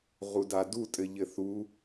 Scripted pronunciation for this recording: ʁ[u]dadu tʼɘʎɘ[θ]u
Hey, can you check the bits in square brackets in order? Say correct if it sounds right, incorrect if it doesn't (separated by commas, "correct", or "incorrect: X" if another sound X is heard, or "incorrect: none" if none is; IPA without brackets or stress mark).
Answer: correct, correct